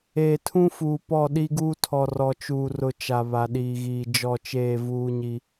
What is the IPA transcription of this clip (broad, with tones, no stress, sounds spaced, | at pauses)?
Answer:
eː˨ tʰ ũ˦ f uː˨ p ɔ˦˨ ɗ i˦ ɡ uː˦ tʰ ɔ˨ r ɔ˨ t͡ʃ uː˨ r ʊ˨ t͡ʃ a˨ β a˨ ɗ iː˨ ɣ iː˨ d͡ʒ ɔ˦˨ t͡ʃ eː˦˨ v uː˦ ɲ i˦